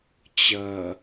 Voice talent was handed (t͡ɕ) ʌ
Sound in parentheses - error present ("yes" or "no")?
no